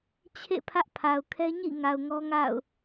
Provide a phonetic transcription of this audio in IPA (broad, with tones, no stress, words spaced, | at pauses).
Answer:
t͡ɕʰḛ˦˨ pʰä˦ʔpʰa˨ʊ̯kʰɛ˦ ɲḭ˦˨ ŋa˨ʊ̯ŋɔ˦ŋa̰˦˨ʊ̯